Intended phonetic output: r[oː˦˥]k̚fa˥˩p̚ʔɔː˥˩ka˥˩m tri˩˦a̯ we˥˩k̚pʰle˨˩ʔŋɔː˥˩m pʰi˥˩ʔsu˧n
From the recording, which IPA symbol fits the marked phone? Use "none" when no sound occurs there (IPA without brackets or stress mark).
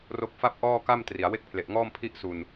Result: o˦˥